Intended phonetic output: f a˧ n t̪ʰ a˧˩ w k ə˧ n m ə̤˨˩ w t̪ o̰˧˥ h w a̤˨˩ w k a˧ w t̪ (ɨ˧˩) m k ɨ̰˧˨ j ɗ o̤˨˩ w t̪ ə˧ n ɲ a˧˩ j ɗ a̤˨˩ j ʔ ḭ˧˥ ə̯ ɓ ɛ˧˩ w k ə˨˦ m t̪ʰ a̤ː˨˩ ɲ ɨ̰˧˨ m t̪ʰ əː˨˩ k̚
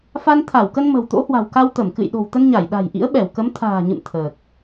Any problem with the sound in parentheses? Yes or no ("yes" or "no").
yes